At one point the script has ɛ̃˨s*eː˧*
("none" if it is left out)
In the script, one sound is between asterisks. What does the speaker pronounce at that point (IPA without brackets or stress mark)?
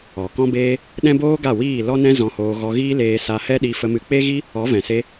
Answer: e˧